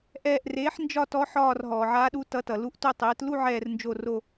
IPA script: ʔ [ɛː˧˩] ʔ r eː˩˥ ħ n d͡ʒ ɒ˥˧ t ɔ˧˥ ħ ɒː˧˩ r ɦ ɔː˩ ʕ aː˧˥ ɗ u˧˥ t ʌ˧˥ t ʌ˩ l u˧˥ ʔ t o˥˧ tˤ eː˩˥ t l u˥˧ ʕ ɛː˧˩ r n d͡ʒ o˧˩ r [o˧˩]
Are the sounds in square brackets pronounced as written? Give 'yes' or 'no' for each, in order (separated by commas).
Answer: yes, yes